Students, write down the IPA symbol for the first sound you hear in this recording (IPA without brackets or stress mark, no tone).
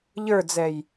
ʎ